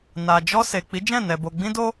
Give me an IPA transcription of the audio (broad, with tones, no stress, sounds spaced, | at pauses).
n a˨ d͡ʒ ɔ˧ s e˨ k͡p i˨˦ d͡ʒ ɛ̃˦˨ n ɛ˨ b o˨ ɡ͡b ĩ˧ d o˧